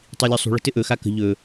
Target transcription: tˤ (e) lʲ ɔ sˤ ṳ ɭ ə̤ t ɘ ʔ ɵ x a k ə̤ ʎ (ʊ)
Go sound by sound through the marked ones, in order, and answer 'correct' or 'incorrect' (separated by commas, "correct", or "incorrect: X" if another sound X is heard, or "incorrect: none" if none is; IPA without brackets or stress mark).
incorrect: i, incorrect: ɵ